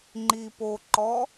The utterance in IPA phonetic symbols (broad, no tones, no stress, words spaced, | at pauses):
ŋ͡ǃi poǃɔ